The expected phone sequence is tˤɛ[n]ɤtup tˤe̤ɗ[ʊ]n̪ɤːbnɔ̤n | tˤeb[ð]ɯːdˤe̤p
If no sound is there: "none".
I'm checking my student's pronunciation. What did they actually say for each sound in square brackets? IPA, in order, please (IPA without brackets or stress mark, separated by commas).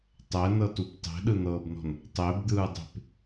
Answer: n, ɯ, d̪